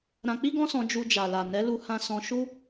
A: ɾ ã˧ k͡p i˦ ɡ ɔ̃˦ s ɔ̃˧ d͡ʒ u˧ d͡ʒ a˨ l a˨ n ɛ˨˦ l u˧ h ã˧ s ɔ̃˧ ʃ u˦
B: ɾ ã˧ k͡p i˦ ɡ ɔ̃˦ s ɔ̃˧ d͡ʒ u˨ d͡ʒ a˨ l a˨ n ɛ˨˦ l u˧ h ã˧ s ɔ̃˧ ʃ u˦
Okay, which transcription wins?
A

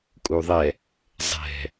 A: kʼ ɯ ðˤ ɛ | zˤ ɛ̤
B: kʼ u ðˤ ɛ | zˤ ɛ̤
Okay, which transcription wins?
B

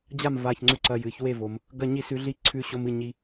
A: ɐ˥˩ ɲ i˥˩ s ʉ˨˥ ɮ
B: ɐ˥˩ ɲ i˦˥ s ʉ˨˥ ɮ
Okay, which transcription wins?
A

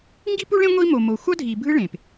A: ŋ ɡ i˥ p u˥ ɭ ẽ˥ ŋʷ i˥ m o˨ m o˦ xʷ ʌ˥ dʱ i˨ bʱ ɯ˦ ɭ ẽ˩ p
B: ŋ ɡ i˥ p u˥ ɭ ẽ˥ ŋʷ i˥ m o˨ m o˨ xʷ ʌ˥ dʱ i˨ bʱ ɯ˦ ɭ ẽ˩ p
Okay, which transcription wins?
B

